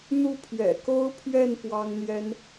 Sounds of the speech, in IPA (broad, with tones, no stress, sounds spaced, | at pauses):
n̪ u˥˩ pʰ ɥ ɛ̰˨˩ k o˥ ʊ̯ pʰ ɥ ɛ˥˩ n p w ɑ˥ ŋ n̪ j ɛ˥ n